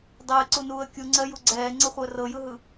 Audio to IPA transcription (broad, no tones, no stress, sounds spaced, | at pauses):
dˤ ɪː ǀ u n uː ə̯ kʲ u ŋ͡ǀ ɜ j u ɡ͡ǀ ɛː ŋ͡ǀ ɤ χʷ ɜ r ɤ j ɯ ɦ ɯ